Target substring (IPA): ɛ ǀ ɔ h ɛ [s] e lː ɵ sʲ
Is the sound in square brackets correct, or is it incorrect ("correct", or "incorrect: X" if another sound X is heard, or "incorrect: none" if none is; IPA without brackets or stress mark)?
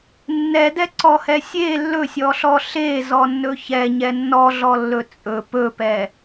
incorrect: sʲ